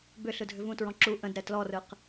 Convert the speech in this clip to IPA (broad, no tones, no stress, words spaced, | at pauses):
bʏ ɬɯdʱʏvũtɹɔ̃ ǁu ʔə̃dɾɛ tlɔrɯq